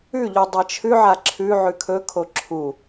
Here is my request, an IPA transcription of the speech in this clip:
ʉ ʎ u dˤ ɐ t͡ʃʰ ʉ ʕ a ǁʰ ʉ ʕ ʉ kʰ ɵ kʰ o ǁʰ u

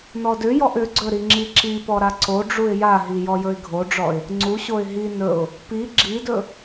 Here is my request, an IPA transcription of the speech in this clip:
n ɔ d ʏ j ɔ ʔ ʏ ɡ͡ǀ ɵ ɾ i ŋ͡ǁ i ǁ i p ɔ ɾ a ǀ o ɖ͡ʐ u ɪ̯ j a ɦ i j ɔ j ɵ ɪ̯ ɡʱ o ɖ͡ʐ ɔ ɪ̯ | ŋ͡ǀ u ɕ o ɪ̯ ɦ i n ɵ ʊ̯ | p i ɡ͡ǁ i d ɵ

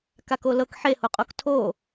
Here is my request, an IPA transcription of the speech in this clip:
k a k o l ɤ k ħ e h o qʼ o k tʰ o

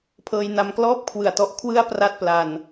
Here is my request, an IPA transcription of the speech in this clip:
pʰ ɤː˧ j n a˧ m k l ɔː˥˩ p̚ kʰ w ɯ˨˩ a̯ t ɔ˦˥ ʔ kʰ w ɯ˥˩ a̯ p r a˥˩ t̚ p l a˧ n

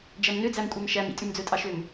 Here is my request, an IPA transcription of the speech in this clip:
d͡ʒ æ m n ø d͡z æ m kʷʼ ɑ m ʃ æ m ḭ tʼ ʉ m d͡z ɵ tʼ ɑ ʃ ø m

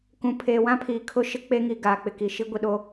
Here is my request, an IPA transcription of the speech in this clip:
k ũ˨ pʰ eː˨ w ã˦ pʰ iː˨ kʰ ʊ˦ ʃ ɪ˦ k͡p e˦ ŋ i˨ ɡ aː˨ k͡p ɪ˨ k i˨ ʃ i˦ ɡʷ i˨ ɗ o˦

